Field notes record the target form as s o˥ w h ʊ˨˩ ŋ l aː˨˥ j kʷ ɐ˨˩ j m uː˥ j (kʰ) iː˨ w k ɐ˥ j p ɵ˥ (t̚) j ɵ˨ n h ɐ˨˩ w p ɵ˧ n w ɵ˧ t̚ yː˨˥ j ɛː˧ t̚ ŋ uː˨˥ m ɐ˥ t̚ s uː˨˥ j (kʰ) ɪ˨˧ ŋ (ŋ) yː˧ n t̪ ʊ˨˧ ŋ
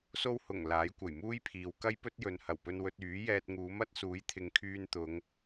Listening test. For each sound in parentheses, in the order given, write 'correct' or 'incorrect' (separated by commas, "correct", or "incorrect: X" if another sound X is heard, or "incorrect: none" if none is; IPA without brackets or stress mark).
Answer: incorrect: pʰ, correct, incorrect: t̪ʰ, incorrect: kʰ